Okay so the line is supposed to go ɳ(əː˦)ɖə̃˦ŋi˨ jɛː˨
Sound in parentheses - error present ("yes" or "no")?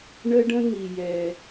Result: yes